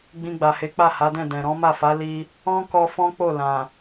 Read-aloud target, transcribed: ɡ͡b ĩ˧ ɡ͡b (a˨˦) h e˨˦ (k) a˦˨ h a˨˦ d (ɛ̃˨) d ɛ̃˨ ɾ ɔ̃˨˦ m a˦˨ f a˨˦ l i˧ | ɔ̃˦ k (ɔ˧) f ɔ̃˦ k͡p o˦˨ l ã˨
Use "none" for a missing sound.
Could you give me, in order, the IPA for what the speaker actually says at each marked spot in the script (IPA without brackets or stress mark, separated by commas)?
a˨, k͡p, ɛ̃˦˨, ɔ˧